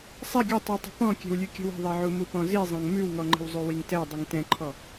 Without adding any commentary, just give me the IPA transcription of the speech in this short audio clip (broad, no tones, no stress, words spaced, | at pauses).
sˤɛ ɡʲɵtˤʉtˤə̤ pɔ̃kʲɛ̤wlʲʉ kʲə̤wə̤ðˤɛʕu mupɔ̃zizˤɛ̃ŋ mʉwŋɔŋ͡ǃə̤w zˤʉwiŋtɛ dˤiŋtɛ̃ǃʰɔ